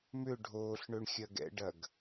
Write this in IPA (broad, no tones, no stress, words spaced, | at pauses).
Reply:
mʏ ɖʱoːɬɳøɳxʲɐ ɡɛ̰ɖɐɡ